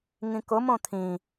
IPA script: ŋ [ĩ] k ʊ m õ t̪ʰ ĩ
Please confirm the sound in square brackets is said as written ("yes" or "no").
yes